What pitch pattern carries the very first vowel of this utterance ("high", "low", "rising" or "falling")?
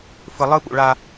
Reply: low